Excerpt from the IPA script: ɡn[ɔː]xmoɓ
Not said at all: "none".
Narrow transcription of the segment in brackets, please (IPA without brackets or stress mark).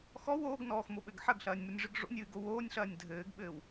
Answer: ɔː